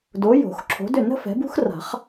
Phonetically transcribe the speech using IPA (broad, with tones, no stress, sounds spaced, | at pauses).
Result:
d o˨˦ j o̤˨˩˦ x ǁʰ o̤˨˦ d ʏ˥˩ n ə̤˥ f ɛ̤˨˦ b ṳ˥ x r a̤˨˩˦ χ